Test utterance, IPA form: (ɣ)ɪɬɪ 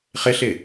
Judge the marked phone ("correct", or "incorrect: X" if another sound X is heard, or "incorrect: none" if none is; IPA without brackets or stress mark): incorrect: χ